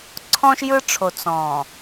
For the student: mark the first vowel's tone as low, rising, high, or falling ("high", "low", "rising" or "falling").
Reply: high